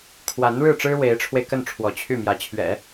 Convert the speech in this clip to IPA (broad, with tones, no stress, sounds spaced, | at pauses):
kʰ w a˧˥ n ɻ ɻ̩˥˩ ʈ͡ʂ ɻ̩˥ w e˧˥ ɪ̯ ʈ͡ʂʰ w e˧ ɪ̯ k ə˥˩ n ʈ͡ʂʰ w ɔ˧˥ t͡ɕʰ y˥˩ m j ä˧˥ t͡ɕʰ ɥ ɛ̰˨˩˦